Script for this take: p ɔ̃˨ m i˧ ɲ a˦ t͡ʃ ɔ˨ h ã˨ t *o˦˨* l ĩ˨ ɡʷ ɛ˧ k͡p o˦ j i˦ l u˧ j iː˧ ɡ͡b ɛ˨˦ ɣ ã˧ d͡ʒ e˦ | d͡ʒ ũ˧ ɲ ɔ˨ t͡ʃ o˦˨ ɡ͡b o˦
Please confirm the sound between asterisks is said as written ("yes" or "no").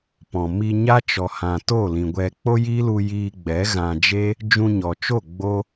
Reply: yes